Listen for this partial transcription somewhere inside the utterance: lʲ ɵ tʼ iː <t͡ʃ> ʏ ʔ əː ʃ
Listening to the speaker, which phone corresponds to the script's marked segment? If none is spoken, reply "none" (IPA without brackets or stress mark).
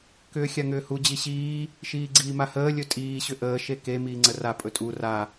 ɕ